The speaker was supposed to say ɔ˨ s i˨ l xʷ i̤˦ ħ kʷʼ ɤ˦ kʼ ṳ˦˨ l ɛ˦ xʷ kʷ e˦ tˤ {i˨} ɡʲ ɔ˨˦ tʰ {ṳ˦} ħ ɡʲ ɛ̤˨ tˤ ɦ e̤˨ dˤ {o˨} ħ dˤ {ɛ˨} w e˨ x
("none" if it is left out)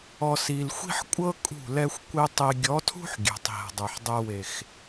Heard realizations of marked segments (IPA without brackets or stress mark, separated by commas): i˨, ṳ˦, ɤ˨, ɛ˨